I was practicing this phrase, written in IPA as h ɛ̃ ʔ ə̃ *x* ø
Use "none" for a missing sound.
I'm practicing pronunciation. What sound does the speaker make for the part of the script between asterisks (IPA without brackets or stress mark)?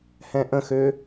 x